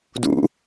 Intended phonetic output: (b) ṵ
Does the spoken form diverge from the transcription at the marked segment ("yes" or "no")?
yes